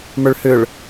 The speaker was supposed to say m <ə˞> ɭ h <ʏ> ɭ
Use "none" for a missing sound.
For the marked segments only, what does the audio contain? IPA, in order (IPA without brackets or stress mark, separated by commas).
ə˞, ʏ